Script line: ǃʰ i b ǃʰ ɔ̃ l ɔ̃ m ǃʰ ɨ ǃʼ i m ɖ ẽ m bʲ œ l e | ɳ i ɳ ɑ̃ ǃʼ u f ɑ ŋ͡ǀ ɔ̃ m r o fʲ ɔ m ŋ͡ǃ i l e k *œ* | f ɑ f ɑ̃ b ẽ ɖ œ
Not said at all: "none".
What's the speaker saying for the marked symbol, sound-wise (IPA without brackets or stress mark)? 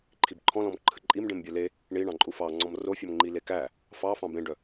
æ